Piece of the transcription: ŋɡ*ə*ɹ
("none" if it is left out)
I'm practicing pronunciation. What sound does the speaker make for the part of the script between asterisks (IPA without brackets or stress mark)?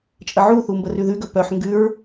ʉ